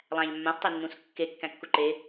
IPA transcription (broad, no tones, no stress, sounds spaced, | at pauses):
lˠ æ̃ ʎ mː ã s tˤ e nː ũ s kː e kː æ̃ kː u ǃ e